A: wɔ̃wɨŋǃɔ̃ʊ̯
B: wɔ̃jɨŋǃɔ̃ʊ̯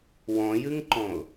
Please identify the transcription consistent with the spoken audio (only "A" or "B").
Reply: B